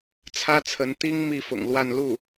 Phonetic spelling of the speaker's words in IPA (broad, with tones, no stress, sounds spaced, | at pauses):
t͡sʰ ä˥ t͡sʰ ə˧˥ n t̪ i˥ ŋ m i˥˩ f ʊ̰˨˩ ŋ l w a˥˧ n l u˥˩